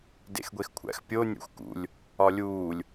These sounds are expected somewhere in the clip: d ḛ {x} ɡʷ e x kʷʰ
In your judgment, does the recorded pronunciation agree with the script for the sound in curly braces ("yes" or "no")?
yes